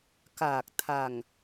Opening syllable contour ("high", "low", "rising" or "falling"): low